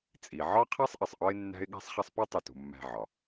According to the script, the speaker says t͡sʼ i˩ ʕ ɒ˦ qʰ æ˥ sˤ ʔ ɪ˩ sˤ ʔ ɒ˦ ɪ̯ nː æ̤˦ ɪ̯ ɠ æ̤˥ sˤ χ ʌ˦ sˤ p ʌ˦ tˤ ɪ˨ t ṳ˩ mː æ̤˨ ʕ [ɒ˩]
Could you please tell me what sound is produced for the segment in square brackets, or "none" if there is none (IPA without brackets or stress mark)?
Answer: ɒ˩